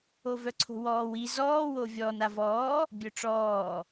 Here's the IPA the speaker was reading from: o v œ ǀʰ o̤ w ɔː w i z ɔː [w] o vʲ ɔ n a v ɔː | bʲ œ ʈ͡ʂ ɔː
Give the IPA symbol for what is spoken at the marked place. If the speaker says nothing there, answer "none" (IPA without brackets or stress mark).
w